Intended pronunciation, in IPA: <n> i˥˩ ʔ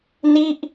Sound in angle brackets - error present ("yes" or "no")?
no